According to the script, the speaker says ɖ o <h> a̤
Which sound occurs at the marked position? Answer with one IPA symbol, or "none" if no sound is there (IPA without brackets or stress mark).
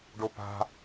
p